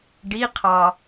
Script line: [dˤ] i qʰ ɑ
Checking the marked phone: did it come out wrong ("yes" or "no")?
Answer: yes